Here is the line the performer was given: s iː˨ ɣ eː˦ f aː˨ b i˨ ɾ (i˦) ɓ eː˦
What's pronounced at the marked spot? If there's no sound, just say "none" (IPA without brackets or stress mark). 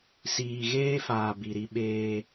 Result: i˦